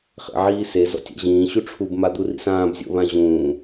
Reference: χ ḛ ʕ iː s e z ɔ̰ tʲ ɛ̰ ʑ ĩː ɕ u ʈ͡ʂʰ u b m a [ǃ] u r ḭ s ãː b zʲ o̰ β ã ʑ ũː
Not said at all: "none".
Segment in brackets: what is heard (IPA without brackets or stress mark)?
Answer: d̪